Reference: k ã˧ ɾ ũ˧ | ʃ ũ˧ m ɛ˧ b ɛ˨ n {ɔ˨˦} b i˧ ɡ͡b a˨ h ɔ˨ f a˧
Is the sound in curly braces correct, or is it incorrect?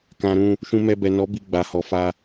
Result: correct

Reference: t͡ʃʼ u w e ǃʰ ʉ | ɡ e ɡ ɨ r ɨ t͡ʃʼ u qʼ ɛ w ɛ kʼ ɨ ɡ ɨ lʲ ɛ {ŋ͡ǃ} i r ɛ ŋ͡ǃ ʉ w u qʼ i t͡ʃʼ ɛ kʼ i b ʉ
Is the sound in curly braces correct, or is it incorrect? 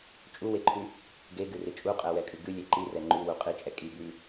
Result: incorrect: ǃ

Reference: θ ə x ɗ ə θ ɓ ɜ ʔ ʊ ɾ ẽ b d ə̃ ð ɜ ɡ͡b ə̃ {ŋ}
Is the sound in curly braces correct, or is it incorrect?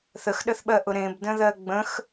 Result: incorrect: x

